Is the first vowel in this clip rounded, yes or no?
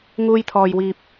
yes